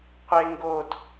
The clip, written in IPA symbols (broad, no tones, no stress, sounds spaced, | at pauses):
qʷ e ŋ ɡ o d